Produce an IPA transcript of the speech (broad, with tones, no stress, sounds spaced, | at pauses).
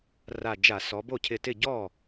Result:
r a˧˩ d͡ʒ a˧˩˧ s ɔ˩˧ b o˥˩ cʰ ɪ˧˩ t ɪ˥˩ ɟ ɔ˥˩